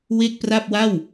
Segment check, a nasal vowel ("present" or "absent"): absent